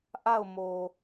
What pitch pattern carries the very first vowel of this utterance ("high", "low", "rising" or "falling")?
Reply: falling